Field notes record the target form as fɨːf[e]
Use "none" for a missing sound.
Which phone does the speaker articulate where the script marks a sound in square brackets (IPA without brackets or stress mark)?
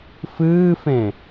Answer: ẽ